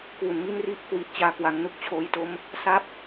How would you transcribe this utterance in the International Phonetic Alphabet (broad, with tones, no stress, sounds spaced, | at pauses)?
k w u˧ n m i˥˩ n r i˥˩ ʔ k w i˦˥ ʔ t͡ɕ aː˥˩ k w a˦˥ ŋ n u˥˩ k̚ t͡ɕʰ oː˦˥ j t o˦˥ m | s a˥˩ p̚